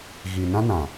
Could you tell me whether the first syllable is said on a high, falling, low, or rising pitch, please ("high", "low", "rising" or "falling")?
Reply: low